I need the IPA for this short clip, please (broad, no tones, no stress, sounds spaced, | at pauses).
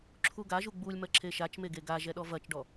ǁʰ u ɡ a ʒ u ɡ͡b u lʲ m ɐ ǁʰ e ʃ a t͡ʃ m e ɡ e ɡ a ʒ ɛ ɗ ɔ v ɐ t͡ʃ ɖ ɔ